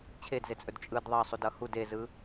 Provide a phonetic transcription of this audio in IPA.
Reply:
t͡ɕʰedzet͡sʼɵd t͡ʃʼɯd ðˤɑsˤudʌ hud ezɯ

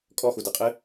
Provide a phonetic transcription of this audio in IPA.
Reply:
kʼɔxudɨqʼɨ

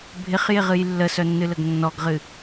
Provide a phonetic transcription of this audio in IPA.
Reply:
bʱɪχjɪʁɨj lːəsœnːɨləɡ nːɔɡʁɨ

